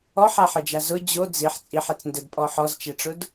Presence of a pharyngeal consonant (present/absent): present